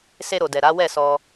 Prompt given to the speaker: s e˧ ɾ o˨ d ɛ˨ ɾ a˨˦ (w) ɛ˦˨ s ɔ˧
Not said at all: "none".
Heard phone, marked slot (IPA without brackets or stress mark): w